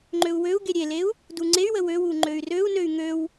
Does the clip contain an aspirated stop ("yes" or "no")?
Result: no